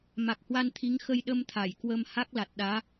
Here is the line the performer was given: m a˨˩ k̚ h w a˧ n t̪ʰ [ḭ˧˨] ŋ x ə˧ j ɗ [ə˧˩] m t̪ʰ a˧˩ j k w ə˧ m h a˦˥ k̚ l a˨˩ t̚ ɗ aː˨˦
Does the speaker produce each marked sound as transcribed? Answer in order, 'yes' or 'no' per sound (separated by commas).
no, no